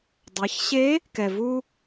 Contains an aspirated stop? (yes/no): no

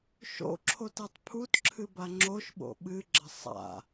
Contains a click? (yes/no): yes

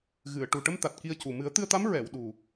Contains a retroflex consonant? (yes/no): yes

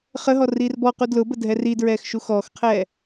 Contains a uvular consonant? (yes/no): yes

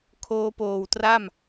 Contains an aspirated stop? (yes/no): yes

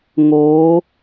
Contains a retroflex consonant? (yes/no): no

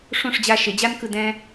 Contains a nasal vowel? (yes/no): yes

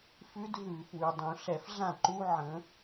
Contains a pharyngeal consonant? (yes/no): yes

